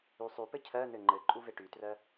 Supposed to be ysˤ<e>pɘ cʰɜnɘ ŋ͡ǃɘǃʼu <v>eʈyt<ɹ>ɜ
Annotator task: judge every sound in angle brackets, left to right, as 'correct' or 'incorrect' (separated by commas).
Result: incorrect, correct, incorrect